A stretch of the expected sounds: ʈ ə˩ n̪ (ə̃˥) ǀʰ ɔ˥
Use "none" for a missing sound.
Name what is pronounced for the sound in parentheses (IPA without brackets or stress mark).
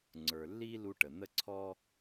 ə˥